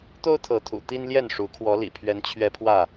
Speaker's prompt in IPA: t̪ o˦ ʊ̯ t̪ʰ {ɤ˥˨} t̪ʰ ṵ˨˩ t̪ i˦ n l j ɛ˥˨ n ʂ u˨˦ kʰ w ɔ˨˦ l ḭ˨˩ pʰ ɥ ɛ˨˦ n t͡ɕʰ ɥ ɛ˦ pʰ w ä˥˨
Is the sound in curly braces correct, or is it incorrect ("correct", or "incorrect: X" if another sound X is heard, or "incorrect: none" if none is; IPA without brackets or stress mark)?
incorrect: ɤ˨˦